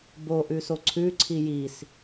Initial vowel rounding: rounded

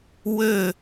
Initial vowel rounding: rounded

